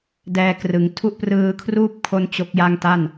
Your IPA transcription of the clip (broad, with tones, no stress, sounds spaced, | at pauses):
d ɛː˧ k r ɯ˩˦ ŋ tʰ u˦˥ ʔ p r ɯː˧ kʰ r uː˥˩ p̚ kʰ o˦˥ n t͡ɕ o˦˥ k̚ j a˥˩ ŋ t a˥˩ n